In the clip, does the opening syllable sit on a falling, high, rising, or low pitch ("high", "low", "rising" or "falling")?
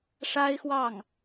high